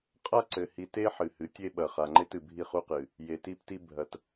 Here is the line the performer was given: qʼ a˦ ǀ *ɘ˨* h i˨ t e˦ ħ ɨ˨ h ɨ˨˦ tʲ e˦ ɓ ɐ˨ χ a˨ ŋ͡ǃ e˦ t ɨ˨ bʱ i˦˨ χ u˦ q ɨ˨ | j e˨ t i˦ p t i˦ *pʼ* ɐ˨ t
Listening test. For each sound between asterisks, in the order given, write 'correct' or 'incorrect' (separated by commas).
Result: correct, incorrect